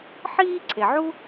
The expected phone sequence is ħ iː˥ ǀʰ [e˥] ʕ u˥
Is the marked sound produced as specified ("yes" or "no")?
no